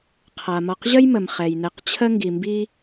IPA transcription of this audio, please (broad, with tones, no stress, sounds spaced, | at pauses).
qʰ a˩ m ɒ˨ q ʑ ə˥ j m ə˩ m χ ɛ˩ j n ɛ˨ q t͡ɕʰ ə˦ ŋ ɡ i˩ m b i˦